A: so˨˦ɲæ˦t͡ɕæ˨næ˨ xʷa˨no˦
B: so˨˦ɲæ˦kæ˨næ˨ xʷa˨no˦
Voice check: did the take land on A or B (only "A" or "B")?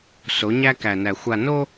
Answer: B